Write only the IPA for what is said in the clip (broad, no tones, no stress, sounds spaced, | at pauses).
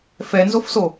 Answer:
f ɛ n z o f s o